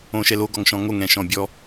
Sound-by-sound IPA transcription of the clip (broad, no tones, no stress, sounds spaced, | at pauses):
õ ʃ ɛ l o ɡ ɔ ŋ ʃ ɔ̃ ŋ o ŋ ɛ̃ ʃ ɔ̃ bʲ ɔ